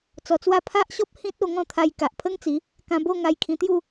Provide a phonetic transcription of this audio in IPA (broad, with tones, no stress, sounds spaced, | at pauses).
t͡s ɔ˧ t͡s w a˥˧ pʰ a˦ ʔ ɕ ɔ˦ p̚ h ĩ˦ t̚ o˧ ŋ ɔ̃˥˧ t̪ʰ a˧ j k a˨ ʔ pʰ ə˦ ŋ t͡s i˨˦ | k ã˧ b o˥˧ ŋ a˧ j kʰ ĩ˧ t̪ j u˥˧